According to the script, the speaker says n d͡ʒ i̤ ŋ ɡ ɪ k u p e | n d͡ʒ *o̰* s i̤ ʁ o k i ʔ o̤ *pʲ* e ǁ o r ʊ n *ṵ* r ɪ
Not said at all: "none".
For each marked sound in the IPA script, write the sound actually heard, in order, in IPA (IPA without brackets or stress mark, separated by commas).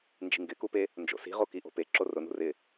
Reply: o̰, p, ṳ